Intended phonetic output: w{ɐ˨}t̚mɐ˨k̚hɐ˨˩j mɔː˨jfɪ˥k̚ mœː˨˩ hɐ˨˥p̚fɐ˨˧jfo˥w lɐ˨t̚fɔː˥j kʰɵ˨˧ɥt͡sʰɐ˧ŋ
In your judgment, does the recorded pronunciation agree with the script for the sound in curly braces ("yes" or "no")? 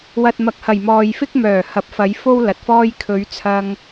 yes